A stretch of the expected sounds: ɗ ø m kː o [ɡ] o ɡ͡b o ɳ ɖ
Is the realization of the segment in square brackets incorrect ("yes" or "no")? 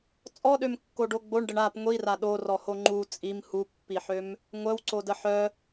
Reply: yes